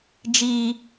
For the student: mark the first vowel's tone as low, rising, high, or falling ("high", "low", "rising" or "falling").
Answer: high